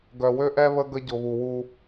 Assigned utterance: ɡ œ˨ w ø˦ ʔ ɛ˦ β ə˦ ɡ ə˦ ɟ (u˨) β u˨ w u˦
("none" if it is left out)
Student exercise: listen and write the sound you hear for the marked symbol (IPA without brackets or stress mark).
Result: ʊ˨